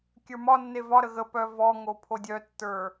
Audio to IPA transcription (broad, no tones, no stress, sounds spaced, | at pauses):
kʲ ə˞ m ɒ nː e v ɒ ɾ ə ɣ ə p œ v ɔ ŋ o pʰ o dʲ œ tː ə˞